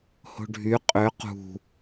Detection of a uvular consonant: present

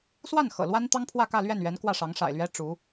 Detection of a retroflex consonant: present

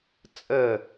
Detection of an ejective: present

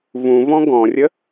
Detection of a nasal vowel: present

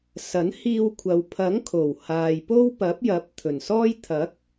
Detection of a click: absent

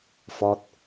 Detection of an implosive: absent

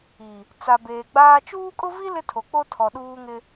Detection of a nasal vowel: absent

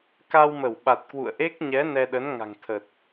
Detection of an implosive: present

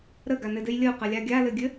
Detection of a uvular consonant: present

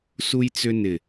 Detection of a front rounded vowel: present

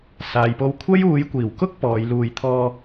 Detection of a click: absent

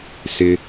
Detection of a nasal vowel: absent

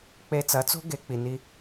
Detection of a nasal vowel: absent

